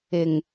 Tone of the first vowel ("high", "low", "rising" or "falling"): low